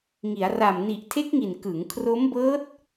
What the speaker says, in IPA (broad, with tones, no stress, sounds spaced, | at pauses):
ŋ i˩˦ a̯ r a˨˩ m n i˨˩ ʔ tʰ e˦˥ k̚ ŋ i˨˩ n k ɯ˩˦ ŋ kʰ r o˦˥ m b ɤː˦˥ t̚